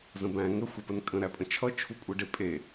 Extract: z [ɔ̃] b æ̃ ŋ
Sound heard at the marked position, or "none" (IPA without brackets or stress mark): ə̃